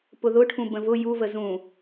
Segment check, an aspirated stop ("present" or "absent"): present